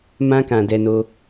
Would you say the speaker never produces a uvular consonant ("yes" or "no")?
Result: yes